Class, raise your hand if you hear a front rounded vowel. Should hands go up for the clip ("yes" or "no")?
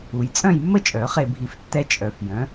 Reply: yes